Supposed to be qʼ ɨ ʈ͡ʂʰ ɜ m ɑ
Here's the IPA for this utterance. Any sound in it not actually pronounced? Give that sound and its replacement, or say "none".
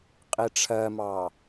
ɨ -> i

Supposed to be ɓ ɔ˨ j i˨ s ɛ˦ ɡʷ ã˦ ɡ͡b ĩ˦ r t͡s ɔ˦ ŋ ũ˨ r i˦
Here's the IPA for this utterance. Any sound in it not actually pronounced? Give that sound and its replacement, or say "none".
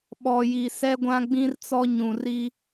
ŋ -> ɲ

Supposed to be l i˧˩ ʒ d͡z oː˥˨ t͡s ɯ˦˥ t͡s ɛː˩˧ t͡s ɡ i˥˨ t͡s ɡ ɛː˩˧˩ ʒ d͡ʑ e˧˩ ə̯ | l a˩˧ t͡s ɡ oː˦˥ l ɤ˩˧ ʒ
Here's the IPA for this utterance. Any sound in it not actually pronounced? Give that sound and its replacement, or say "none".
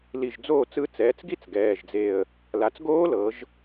d͡ʑ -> d͡z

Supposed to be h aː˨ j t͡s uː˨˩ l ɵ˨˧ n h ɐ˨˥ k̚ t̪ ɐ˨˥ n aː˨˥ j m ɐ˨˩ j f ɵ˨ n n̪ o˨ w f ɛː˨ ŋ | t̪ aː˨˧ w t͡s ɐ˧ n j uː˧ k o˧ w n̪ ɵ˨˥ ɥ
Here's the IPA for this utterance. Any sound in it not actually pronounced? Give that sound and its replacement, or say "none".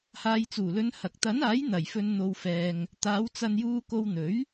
m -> n̪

